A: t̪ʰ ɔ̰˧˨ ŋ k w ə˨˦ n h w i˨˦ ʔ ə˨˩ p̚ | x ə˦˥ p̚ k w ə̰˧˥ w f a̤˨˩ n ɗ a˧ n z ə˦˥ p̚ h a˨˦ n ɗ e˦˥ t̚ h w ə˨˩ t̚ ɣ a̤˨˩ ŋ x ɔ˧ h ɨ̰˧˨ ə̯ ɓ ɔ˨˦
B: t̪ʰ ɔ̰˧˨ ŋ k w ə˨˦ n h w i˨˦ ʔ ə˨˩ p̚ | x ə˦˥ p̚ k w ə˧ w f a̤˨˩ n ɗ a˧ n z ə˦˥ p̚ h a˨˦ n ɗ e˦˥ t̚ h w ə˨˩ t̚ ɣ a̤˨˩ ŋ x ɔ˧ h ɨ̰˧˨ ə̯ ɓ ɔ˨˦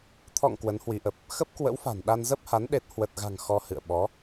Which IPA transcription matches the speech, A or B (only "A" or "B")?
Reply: A